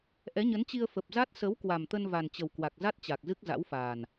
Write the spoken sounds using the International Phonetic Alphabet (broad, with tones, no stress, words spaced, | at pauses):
ʔɛ˨˦ɲə˨˦nt͡ɕi˧ə̯ fə˨˩p̚za˦˥t̚ sə˨˦w kwa˨˩mt̪ə˧n va˨˩nt͡ɕə˨˩w kwa˨˩k̚za˦˥t̚ t͡ɕa˨˩k̚zɨ˦˥k̚za̰˧˥wfaː˨˩n